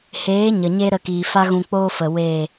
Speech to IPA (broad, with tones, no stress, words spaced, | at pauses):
heː˨˦ ɲə˨ɲe˦ɾə˧ kiː˨fa˦ ɣũ˧k͡poː˦fə˨ weː˦˨